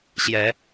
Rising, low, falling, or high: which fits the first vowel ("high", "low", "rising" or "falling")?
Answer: rising